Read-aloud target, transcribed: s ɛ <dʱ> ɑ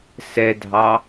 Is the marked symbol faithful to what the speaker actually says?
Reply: yes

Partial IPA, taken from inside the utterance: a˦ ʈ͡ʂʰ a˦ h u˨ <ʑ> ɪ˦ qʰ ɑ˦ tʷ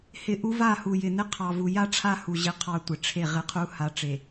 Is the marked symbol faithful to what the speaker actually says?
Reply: yes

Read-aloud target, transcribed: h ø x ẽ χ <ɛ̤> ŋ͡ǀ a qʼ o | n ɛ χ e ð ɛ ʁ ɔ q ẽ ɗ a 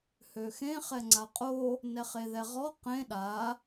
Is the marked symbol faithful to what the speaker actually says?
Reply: no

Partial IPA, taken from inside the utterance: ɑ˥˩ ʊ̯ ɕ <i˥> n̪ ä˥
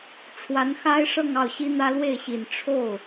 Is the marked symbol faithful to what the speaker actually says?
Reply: yes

